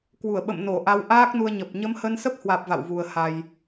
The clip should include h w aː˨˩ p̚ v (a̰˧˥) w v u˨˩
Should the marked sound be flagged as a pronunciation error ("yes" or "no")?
yes